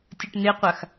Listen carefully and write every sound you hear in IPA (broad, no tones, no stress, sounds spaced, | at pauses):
tʲ ʌ ʈ n e qʷ a x